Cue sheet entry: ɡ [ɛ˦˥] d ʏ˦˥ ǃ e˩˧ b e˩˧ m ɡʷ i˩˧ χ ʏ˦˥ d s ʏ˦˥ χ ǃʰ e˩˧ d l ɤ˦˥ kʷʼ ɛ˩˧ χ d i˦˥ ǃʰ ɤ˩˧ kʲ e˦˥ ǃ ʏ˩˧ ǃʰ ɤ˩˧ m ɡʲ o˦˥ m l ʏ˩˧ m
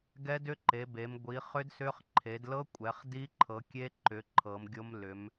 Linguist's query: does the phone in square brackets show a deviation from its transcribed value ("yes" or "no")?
no